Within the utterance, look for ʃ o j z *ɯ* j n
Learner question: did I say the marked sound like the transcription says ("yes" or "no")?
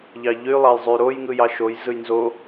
yes